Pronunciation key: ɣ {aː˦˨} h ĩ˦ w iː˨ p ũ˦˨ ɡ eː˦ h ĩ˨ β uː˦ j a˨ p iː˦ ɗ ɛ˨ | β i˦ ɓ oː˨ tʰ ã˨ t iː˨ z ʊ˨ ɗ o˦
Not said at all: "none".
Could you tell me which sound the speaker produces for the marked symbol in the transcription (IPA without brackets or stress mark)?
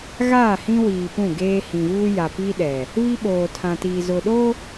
aː˦˨